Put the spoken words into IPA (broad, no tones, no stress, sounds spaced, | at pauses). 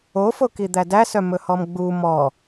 o f o k i d̪ æ d æ s œ m ɵ h ɔ m ɡ͡b u m ɔ